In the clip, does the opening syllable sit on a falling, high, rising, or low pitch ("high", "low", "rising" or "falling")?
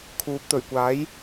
rising